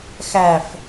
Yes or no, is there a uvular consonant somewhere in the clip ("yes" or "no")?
no